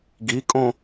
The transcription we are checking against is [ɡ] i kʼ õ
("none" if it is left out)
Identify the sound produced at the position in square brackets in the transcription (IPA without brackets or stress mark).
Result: ɡ